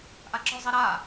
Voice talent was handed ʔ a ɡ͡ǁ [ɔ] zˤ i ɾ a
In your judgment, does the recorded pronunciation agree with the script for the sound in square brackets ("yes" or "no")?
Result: yes